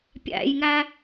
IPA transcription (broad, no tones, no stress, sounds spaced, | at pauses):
pʲ æ̰ j ŋ æ